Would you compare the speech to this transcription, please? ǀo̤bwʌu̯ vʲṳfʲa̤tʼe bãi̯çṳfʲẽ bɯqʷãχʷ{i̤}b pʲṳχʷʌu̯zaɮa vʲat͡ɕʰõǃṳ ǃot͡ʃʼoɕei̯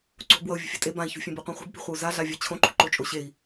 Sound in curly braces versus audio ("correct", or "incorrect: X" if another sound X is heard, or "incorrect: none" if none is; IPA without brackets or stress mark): incorrect: e̤